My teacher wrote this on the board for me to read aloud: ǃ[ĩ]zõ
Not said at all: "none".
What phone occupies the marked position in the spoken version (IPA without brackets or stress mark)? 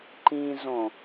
ĩ